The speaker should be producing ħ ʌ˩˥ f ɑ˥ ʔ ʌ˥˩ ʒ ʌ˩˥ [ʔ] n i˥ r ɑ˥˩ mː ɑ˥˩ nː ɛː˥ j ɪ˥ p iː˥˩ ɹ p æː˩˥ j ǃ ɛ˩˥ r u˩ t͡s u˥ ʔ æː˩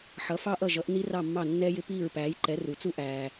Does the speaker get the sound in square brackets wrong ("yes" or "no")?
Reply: no